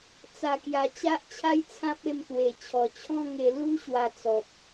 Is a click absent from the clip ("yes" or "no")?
yes